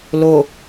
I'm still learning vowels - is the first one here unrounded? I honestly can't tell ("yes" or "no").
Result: no